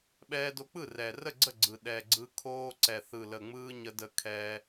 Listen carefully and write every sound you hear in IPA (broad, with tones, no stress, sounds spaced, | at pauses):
ɓ ɛː˧ d o˧ k͡p ɯ˥˩ r ɛ˨˩ r ə˥˩ ɡ͡ǀ ə˥˩ ɡ͡ǀ ɯ˨˩ ɗ ɛ˨˩ ɡ͡ǀ ɯ˧ kʰ oː˧ ǀ ɛ˨˩ θ ɯ˨˩ l ə˨˩ ŋ͡m ɯː˧ ɲ ə˧ d ə˧ kʰ ɛː˧